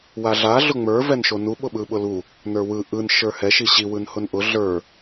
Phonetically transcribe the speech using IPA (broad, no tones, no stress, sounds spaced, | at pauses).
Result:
w a ɮ a ɮ ʊ ŋ͡m ə˞ v ɛ n ʃ o n u ɓ ʊ ɓ ɯ ɓ ʊ l u | n ə˞ w ɯ ʔ ɯ n ʃ ə˞ h ɛ ʃ i ɕ i w ɯ n h ʊ n ʔ ʊ ɮ ə˞